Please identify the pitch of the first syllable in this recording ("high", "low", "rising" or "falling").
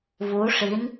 rising